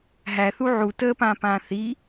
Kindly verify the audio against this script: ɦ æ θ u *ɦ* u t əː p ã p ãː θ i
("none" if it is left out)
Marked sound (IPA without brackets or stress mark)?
ʕ